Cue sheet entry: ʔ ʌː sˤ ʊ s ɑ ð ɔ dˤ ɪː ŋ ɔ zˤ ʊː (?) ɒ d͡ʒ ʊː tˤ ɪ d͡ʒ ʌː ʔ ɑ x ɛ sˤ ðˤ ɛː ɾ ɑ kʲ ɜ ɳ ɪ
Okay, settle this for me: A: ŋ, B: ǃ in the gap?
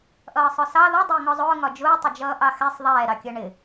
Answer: A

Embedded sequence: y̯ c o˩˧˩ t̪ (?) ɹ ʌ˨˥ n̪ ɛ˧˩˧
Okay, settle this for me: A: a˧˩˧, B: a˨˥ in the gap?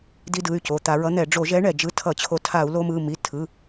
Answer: A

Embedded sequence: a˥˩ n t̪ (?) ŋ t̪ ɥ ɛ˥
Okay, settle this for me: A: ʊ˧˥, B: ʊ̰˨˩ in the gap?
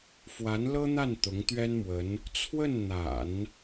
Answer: A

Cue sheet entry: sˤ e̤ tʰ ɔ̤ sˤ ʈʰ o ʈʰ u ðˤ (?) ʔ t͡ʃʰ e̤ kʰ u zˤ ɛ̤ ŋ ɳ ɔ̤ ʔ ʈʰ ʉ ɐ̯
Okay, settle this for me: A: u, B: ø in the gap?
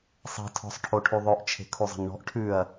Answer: B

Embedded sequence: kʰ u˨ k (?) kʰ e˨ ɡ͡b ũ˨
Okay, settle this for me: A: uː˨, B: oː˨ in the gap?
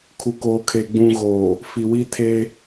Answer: B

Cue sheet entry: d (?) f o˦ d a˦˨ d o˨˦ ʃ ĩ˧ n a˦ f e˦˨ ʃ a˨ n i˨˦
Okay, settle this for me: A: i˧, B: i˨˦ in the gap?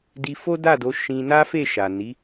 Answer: A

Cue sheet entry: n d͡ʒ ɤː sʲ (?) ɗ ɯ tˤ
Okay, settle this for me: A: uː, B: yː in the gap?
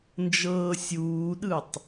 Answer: A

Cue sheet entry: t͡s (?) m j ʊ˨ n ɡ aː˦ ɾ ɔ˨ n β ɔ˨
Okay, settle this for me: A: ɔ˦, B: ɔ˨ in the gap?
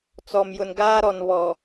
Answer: B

